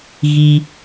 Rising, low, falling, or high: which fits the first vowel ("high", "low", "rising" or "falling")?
high